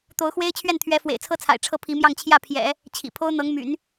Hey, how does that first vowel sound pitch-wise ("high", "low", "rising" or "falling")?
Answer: rising